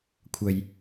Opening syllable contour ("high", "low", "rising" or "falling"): low